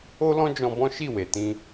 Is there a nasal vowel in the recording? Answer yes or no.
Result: yes